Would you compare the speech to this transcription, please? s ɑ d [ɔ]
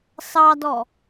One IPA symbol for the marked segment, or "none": ɔ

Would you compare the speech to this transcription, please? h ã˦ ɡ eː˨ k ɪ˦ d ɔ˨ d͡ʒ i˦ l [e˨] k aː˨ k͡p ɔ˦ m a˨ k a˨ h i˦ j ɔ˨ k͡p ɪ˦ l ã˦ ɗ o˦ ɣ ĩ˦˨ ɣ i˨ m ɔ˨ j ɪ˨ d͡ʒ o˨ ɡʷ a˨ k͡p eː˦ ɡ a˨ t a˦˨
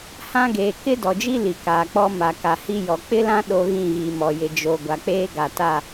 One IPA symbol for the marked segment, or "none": i˨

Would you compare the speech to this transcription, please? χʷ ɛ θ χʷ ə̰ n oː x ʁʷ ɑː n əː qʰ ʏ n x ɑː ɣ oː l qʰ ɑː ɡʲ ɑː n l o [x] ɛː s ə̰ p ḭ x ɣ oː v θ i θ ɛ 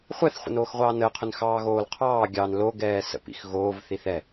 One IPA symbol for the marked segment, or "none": ɡ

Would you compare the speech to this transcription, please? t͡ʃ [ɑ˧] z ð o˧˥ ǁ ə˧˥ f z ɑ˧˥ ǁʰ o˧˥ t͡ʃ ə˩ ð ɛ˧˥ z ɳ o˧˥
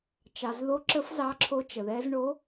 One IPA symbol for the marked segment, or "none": ɑ˩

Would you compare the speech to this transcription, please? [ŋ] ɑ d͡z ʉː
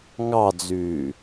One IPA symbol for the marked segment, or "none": ŋ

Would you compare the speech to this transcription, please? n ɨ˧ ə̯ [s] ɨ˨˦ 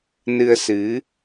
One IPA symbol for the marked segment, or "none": s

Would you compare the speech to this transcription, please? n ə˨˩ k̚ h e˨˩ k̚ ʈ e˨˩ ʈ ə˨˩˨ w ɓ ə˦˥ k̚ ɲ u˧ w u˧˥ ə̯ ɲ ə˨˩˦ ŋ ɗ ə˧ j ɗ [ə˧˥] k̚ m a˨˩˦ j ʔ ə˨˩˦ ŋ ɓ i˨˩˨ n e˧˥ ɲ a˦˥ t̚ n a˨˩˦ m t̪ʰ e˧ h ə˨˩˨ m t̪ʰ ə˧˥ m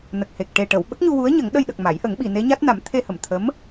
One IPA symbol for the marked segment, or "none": ə˨˩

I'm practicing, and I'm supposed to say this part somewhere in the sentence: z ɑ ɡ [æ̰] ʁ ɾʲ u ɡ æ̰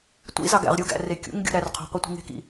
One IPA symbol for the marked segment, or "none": æ̰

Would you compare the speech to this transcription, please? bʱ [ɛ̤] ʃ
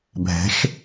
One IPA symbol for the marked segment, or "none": ɛ̤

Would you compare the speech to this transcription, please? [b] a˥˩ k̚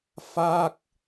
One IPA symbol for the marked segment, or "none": f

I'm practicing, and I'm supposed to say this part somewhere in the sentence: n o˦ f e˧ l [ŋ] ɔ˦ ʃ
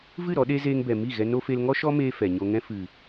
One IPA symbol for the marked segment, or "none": ŋ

